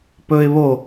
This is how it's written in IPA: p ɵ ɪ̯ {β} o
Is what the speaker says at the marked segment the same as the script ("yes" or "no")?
yes